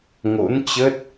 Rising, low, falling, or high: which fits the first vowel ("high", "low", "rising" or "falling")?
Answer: rising